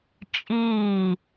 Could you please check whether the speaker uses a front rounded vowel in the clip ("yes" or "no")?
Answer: no